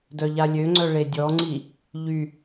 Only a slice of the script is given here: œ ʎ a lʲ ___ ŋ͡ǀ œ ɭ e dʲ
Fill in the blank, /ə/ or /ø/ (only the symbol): ø